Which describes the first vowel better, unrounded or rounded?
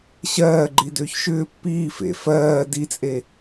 unrounded